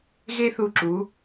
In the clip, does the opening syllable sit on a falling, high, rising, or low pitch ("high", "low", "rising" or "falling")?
high